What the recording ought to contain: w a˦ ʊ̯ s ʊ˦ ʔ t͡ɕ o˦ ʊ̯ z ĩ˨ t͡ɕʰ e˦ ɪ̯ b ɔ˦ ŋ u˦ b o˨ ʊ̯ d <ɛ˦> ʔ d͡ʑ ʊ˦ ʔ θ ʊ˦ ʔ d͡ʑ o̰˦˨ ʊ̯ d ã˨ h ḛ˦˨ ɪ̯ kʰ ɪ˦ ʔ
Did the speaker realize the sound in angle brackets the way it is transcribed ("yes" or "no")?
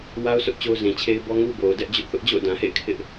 yes